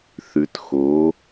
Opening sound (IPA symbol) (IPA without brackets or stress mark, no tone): θ